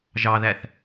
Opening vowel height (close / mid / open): open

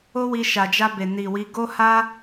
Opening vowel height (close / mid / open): mid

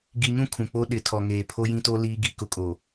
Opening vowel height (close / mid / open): close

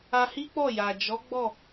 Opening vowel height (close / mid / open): open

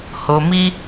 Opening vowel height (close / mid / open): mid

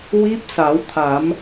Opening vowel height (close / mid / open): close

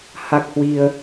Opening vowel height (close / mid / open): open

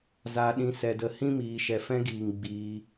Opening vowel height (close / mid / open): open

